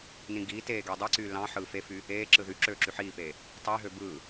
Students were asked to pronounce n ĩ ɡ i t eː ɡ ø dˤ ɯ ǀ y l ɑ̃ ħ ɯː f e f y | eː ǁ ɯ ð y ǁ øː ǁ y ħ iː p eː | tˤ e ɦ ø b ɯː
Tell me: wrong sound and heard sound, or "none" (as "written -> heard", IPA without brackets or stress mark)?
none